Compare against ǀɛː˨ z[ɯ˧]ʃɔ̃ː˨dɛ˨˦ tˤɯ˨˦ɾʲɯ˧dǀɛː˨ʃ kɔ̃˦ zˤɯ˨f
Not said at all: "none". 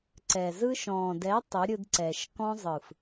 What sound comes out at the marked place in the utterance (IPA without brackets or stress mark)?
ɯ˧